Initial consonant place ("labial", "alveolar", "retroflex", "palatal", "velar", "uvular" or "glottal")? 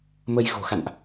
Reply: labial